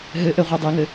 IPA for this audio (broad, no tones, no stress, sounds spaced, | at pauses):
ɦ ɘ ʔ ɘ ʁʷ ɛ dˤ ɛ ŋ ɘ